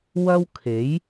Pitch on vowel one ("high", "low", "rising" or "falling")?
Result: high